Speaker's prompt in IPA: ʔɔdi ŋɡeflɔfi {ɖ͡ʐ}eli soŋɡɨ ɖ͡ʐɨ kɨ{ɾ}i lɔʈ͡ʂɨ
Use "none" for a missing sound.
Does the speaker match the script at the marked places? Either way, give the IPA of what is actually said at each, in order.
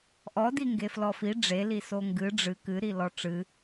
ɖ͡ʐ, ɾ

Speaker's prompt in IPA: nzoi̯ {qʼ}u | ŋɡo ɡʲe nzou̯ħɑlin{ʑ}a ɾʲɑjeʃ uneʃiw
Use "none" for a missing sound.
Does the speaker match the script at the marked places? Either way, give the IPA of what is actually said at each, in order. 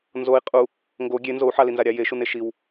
qʼ, z

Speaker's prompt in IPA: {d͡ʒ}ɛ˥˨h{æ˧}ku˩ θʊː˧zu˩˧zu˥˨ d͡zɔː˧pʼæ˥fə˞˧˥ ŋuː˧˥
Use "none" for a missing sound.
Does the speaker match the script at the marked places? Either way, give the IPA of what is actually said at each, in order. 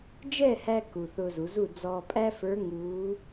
d͡ʒ, æ˧

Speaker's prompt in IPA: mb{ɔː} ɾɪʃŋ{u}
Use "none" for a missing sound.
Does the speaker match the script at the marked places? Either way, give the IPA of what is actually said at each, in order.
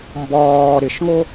ɔː, o

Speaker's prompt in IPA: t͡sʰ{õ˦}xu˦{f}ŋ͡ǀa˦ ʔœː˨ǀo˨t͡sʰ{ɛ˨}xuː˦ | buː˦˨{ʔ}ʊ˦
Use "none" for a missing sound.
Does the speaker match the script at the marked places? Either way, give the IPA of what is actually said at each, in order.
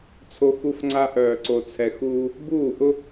o˦, f, ɛ˨, ʔ

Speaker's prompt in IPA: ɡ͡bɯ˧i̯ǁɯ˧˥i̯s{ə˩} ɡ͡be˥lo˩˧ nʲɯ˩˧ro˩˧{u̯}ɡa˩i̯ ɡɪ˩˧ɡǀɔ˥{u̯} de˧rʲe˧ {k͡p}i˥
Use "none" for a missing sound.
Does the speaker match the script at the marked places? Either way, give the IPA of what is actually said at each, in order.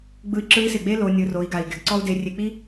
ɪ˩, i̯, u̯, k͡p

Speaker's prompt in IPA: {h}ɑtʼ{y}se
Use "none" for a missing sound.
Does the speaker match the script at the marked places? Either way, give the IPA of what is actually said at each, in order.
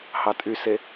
h, y

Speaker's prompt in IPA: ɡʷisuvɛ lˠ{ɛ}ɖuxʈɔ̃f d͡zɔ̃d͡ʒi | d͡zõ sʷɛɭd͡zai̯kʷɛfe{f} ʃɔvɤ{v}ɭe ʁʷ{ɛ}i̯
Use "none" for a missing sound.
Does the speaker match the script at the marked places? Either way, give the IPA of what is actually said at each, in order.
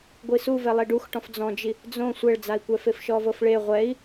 ɛ, f, f, ɛ

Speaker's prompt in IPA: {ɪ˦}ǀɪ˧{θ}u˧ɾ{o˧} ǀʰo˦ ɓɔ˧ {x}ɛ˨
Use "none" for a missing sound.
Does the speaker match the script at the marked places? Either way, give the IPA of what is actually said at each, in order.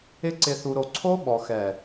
ɪ˦, θ, o˧, x

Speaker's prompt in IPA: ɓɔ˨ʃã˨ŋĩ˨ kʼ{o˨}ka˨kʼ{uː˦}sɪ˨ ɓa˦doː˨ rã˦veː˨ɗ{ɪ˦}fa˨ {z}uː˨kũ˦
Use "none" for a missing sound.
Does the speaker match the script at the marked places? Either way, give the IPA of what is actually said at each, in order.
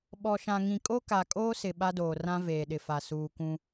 o˦, oː˦, ɪ˨, s

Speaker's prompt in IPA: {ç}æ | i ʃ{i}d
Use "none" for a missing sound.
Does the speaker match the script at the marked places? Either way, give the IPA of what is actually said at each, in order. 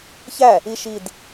ç, i

